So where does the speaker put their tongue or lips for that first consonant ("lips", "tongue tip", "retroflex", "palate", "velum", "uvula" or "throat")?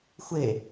velum